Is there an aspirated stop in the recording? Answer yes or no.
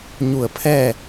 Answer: yes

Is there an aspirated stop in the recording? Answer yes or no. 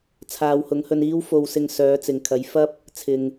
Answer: yes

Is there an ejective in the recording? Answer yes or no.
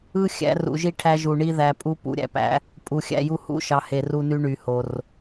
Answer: yes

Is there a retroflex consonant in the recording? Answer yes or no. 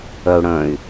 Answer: yes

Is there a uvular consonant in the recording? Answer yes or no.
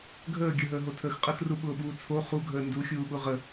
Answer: yes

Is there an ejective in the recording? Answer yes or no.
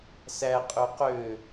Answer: yes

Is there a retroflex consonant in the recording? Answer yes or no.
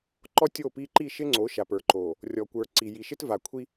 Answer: no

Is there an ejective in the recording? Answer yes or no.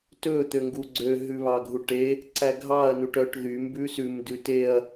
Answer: no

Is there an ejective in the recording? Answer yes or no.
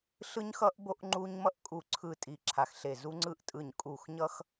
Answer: yes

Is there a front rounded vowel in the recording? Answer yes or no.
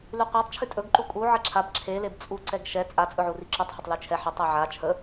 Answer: no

